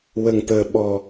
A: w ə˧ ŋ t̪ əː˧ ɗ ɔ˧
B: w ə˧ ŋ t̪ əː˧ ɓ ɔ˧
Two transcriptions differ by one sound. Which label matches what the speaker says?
B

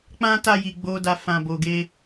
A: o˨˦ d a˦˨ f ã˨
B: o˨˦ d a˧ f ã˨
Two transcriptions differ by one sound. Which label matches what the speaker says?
B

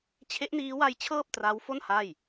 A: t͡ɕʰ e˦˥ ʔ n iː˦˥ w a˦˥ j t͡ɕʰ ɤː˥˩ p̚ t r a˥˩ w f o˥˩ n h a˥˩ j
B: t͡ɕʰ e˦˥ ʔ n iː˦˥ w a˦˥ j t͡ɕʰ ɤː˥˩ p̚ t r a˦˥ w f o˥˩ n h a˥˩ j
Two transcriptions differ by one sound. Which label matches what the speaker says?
B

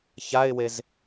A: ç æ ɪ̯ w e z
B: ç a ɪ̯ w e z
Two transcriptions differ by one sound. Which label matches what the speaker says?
B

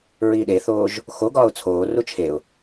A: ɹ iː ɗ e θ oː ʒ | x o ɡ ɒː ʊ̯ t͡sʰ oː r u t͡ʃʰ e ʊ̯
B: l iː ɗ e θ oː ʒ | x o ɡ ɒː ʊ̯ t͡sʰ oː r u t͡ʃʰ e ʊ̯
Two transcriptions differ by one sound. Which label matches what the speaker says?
A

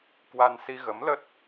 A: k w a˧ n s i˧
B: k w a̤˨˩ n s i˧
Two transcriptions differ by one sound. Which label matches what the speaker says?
A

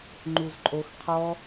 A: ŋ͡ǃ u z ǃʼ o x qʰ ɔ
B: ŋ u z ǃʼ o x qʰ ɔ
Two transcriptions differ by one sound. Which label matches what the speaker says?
A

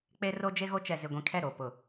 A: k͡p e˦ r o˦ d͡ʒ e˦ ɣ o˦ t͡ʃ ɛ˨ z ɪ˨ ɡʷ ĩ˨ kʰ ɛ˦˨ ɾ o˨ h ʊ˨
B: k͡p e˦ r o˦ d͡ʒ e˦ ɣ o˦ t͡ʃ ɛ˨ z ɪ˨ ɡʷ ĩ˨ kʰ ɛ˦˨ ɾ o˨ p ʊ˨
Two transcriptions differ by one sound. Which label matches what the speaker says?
B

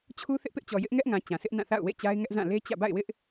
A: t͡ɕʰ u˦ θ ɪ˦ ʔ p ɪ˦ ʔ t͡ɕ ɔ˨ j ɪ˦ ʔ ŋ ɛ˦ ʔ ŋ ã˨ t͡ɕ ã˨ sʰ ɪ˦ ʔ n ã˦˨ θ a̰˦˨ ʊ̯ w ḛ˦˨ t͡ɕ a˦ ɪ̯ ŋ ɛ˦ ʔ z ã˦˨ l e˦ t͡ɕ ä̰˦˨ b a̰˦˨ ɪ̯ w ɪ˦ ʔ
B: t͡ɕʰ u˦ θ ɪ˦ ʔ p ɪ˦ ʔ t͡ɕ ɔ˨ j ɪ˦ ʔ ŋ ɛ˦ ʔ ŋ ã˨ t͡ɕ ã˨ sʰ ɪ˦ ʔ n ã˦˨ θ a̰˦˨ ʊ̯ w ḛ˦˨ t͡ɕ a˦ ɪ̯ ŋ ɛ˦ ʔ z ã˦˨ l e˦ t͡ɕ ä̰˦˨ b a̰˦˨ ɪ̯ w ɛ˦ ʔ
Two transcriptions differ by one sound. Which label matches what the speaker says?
A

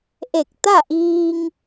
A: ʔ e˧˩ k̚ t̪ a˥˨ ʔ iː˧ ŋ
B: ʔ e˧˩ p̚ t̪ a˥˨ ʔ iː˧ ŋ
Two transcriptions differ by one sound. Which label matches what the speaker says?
A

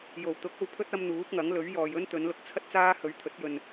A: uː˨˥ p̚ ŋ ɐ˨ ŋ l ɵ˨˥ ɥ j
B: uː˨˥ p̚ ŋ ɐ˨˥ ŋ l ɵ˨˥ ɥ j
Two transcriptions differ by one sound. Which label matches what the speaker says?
B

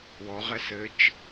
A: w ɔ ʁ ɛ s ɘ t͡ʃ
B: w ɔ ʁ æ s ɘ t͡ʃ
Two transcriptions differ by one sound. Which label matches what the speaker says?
A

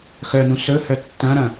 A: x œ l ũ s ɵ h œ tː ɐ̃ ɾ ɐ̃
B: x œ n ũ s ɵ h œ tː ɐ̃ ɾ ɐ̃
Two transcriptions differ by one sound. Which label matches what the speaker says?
B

